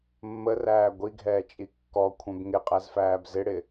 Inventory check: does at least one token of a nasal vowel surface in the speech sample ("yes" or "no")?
yes